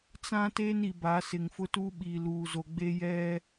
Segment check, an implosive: present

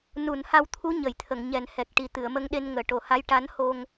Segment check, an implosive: present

